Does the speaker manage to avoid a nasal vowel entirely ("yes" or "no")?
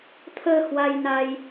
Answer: yes